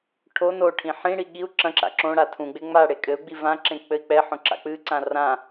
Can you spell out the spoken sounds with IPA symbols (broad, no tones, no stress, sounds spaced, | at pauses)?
ʈʰ o n o ʈʰ ĩ ħ ĩ ɽ i ɠ i u̯ ǁ ɐ̃ ǁ a̰ ǁ õ ɽ a tʰ ũ ɡ͡b e ŋ͡m a ɽ e kʼ ɘ u̯ ɡ͡b i v ã ǁ ẽ k͡p ɘ i̯ k͡p ɛ ħ õ ǁ a̰ k͡p ɨ ǀ ã r ã